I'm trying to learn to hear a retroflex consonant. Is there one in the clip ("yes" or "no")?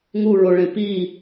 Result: yes